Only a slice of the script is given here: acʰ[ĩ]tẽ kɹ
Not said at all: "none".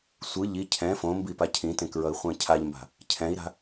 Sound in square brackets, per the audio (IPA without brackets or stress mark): ĩ